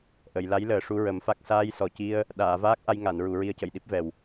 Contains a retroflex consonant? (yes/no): yes